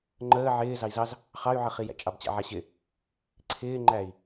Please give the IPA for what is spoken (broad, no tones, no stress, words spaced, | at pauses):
ŋ͡ǃəː ʕɪː zɑi̯zɑz | χɑy̯ʕəχijæ̰ t͡ʃʼɑbt͡ɕæ̰ʕaɕɪ | ǀʰɪːŋ͡ǃæi̯